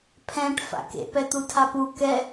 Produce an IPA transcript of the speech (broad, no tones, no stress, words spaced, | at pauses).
pʰɛ̃ʈ fa̰kḛ pɛt̪utʰapu kɛ